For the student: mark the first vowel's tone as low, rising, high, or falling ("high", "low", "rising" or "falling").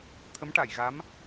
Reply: rising